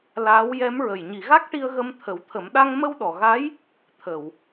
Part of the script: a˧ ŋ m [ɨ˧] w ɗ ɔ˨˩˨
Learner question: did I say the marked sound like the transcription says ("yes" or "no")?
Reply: no